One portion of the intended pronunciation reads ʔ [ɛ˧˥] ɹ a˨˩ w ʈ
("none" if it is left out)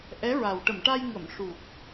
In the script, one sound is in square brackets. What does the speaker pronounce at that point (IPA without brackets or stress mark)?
ɛ˧˥